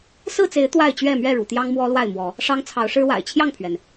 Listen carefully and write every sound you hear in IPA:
s ɹ̩˥˨ t͡s e˨˦ ɪ̯ t̪ w a˥˨ ɪ̯ t͡ɕ ɥ ɛ˥˨ m ɥ ɛ˥˨ ɻ ṵ˨˩ t̪ j ɑ˦ ŋ m w ɔ˦ l w a˥˨ ɪ̯ m w ɔ˨˦ | ʂ ɑ˦ ŋ t͡sʰ ɑ˨˦ ʊ̯ ʂ ɻ̩˦ w a̰˨˩ ɪ̯ t͡ɕʰ j ɑ˥˨ ŋ pʰ ɥ ɛ˩ n

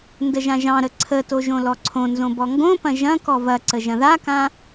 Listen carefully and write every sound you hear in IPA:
n d ə ʒ ã ʒ ɑ̃ ɾ ə ǀʰ ə t o ʒ õ l ɔ ǀʰ õ n z õ b ɔ ŋ ɡ õ p ɐ̃ ʒ ɐ̃ k ɔ v ɐ ǀ ə ʒ ɐ̃ ð a k ã

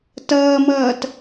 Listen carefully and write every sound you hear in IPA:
t ʌː m ʌː t

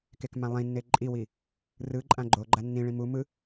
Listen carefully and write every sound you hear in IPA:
k e k m ã lˠ ĩ nː e ǃʼ i w i | r ɯ ǃʼ ã ɡ͡ǃ o ɡ͡ǃ a nː ĩ ɭ ĩ m u m ɯ

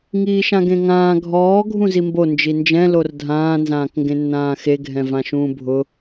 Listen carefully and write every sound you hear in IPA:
ŋ iː ʃ ã ɡ ẽ ŋ ãː ɡʱ ɔː ɡʱ ũ z i m b o n d͡ʒ i n d͡ʒ ɛ̃ l o r dʱ ãː n z ãː k ŋ ɡ ẽ nː ãː x e ɡʱ ɛ̃ v ã ʃ ũː bʱ ʊ

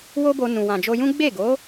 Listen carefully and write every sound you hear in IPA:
w o˦ b o˧ n ũ˨ w ã˨ d͡ʒ o˧ j ũ˦ ɡ͡b e˦˨ ɡ o˨˦

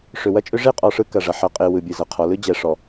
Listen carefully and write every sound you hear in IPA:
ʂ ʏ˨ w ɐ˦ t͡ʃʼ ʏ˦ ʐ e˦˨ qʼ ɔ˨ ʂ ɯ˨ k ɐ˨ ʐ ɐ˨ ħ ɐ˨ qʼ e˨ w ɯ˨ bʲ ɯ˨ z ɐ˨ qʰ ɔ˨˦ l ɯ˦ d͡ʑ ɛ˨ ʂ ɔ˨

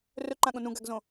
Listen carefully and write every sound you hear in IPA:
r ɵ ǃ ã ɠ õ n ũ ɡ a ɡ z õ

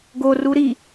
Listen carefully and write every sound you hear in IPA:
ɡ o r u ɾ i

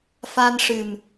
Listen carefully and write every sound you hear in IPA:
f a˧ n ʂ ɨ˨˩ m

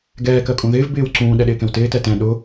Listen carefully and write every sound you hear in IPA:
ɡ ɛː k ɜ kʼ ũ ð ɪː v b ɪː w ǀ ũː ɗ ɛ ɗ ɪː k ɛ̃ w t ɪː t ɛ t ɛ̃ ɗ ʊ

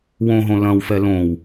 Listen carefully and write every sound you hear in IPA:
w õ ɦ õ l ɐ̃ w f ɛ l õ w

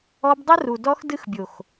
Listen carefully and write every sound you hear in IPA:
ɔ˧ b dˤ ə˦ r u˨ d ɔ˧ x d ɨ˧ x bʲ o˨ x

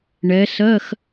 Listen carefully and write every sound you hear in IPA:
ɳ ɛ˨˥ s ɜ˧˥˧ x

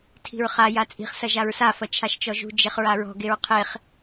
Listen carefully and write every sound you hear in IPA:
tʰ i̤ ɹ χ a j a t͡sʼ i̤ χ s ɐ ʒ a ɹ s a f ɐ t͡ʃʰ a ʃ t͡ʃ ɔ ʒ ṳ d͡ʒ e χ ɹ a ɹ ɔ̤ ɡ e ɹ qʰ e χ

